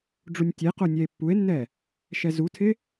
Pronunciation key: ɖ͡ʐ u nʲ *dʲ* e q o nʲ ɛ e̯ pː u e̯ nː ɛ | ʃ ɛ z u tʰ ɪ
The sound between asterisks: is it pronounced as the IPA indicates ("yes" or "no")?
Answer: no